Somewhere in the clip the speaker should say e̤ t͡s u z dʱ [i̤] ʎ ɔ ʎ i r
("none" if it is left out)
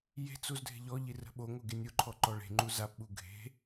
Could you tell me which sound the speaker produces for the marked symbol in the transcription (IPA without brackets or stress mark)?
e̤